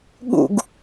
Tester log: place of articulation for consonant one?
velar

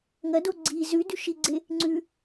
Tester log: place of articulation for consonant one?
velar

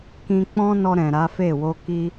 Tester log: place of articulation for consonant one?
velar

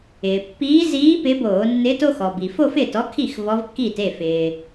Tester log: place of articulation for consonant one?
labial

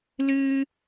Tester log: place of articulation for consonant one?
alveolar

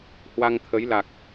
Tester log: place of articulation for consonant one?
glottal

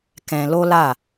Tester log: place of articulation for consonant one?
velar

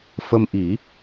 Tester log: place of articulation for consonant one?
labial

